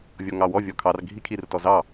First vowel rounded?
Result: yes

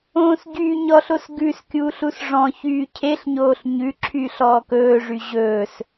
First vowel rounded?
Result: yes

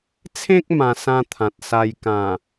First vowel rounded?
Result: no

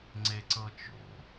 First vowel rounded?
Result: no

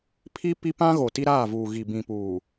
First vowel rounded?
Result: no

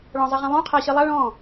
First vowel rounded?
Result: yes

